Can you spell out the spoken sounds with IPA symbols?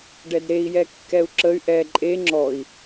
ɖ ɛ d ɾ e i̯ j ɛ kː ɛ u̯ ǁ ə y̯ ʔ ɛ ǃʼ e ŋ͡ǁ ɔ i̯

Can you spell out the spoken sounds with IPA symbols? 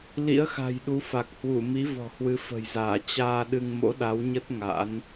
l ḭ˧˥ ə̯ x a̤˨˩ j ɗ u˨˦ f a˨˩ k̚ h w u˧˩ m i˨˦ v ɔ̤˨˩ h w ɨ˨˦ f ə̤˨˩ j z aː˧˩ t͡ɕ aː˧ ɗ ɨ˧ ŋ m o̰˧˥ ɗ a˨˦ w ɲ ə˦˥ t̚ ŋ a̰˧˥ n

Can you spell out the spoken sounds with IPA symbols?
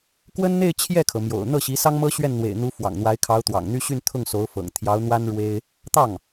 k w ə˥ n n̪ e˥˧ ɪ̯ t͡ɕʰ j ɛ˥˩ kʰ ɤ˩ m j o̰˨˩ ʊ̯ n̪ ɤ˥˩ ɕ i˧˥ s ɑ˥ ŋ m ɤ˥ ɕ ɥ ɛ˥˩ n n̪ w ḛ˨˩ ɪ̯ n̪ u˧˥ f w ɑ̰˨˩ ŋ n̪ w a˧˥ ɪ̯ kʰ ɑ˧˥ ʊ̯ t̪ w ɑ̰˨˩ ŋ n̪ y˥ ɕ y˥˧ n t̪ʰ ʊ˥˩ ŋ s o˧˥ ʊ̯ f ɤ̰˨˩ ŋ t̪ʰ j ɑ˧˥ ʊ̯ n̪ w a˥ n ɻ w e˥ ɪ̯ | t̪ ɑ˥˩ ŋ

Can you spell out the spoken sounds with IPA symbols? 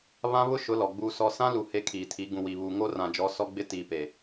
β ã˦ β ʊ˦ ʃ ʊ˨˦ l ɔ˨ ɡ͡b uː˦ s ɔ˦ s ã˦ l u˨ h e˦ kʰ iː˨ tʰ i˨˦ ɡ ũ˨ w i˨ β uː˨ ŋ o˦ r ã˨ d͡ʒ ɔ˨˦ s ɔ˦ ɡ͡b ɪ˦ t iː˨ p e˨

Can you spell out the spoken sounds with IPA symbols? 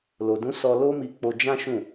l o˨ d ũ˨˦ s ɔ˧ l o˦ m i˧ k͡p o˧ d͡ʒ ã˦ ʃ ũ˦˨

